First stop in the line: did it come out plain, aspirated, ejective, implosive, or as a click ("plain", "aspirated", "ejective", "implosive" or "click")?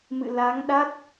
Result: implosive